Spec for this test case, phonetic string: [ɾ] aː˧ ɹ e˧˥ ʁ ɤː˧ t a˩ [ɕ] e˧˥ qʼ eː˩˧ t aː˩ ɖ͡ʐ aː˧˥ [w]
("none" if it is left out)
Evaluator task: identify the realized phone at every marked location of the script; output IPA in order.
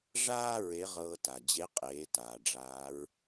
ʐ, d͡ʑ, ɹ

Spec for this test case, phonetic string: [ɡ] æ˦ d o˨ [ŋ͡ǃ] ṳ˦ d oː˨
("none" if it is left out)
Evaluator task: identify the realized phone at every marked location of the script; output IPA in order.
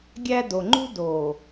ɡʲ, ŋ͡ǃ

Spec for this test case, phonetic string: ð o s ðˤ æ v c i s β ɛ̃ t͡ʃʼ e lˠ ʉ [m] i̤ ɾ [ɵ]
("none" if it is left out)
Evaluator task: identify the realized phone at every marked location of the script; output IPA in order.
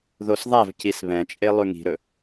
ŋ, ɵ

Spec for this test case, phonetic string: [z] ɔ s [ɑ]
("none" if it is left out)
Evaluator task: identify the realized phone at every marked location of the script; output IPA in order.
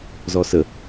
z, ə

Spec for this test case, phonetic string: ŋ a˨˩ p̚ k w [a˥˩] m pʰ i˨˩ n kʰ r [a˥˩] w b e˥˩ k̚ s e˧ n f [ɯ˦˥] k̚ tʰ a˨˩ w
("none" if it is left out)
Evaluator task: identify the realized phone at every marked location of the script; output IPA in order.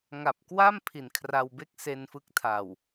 a˥˩, a˧, ɯ˦˥

